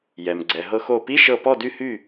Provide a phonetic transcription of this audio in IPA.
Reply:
j ɛ˩ m ɡ͡ǀ ɛ˩ ɦ ɤ˧ x o˧˩ p i˧˥˧ ʃ ɤ˧˩ p ɔ˥˨ d y˥˨ h y˥˨

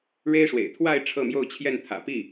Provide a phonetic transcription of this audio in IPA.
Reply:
ɻ e˥ ɪ̯ ʂ w ḛ˨˩ ɪ̯ t̪ʰ w a˥˧ ɪ̯ ʈ͡ʂʰ ɤ˥˧ m j o˥˧ ʊ̯ t͡ɕʰ j ɛ˥˩ n t̪ʰ ä̰˨˩ p i˥˩

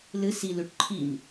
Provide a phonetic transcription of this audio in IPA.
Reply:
l ɨ s i l ʉ ʈ ǃʰ i m

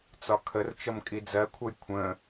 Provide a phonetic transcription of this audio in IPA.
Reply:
t͡s ɒ kʰ ə r t͡ʃ ʌ m kʼ i d͡z ɜ kʷʰ ʌ j kʷʰ ə̃

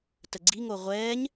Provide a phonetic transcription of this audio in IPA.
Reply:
t ə ɡ͡ǀ i ŋ o ʁʷ ɛː ɲ

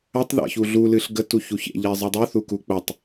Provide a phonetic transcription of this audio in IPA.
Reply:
ə tˤ ð a̰ ç u ɮ u l ɨ ɬ ɡ ə t u ç u ç ḛ ʎ ɛ zˤ ɯ dˤ u θ u k u k͡p ɜ tˤ

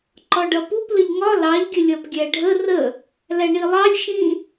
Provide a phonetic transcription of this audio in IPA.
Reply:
ǃ ɒ ɖ ʌ p u p l ə ʎ ŋ ɒ l ɑ ʎ ɡʲ ə lʲ ɒ p ɡʲ æ ɖʱ ə r ə | l æ ɳ i lˠ ɑ lʲ ʃ ĩ

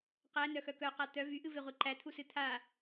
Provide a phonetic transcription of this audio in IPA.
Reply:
q æ n œ x œ k œ q a t̪ œ v y ʔ ɨ v e ʁʷ i ǃ æ t̪ʰ u s ɨ t̪ʰ a

